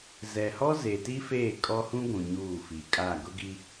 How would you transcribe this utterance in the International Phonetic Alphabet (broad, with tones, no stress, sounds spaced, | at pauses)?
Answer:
z ɛ˨ h ɔ˦ z e˨ t i˦ f eː˦˨ kʼ ɔ˦ h ũ˦ ɡʷ ũ˨ ɲ uː˦˨ f i˨ kʼ a˦˨ ɡ ʊ˦ ɡ i˦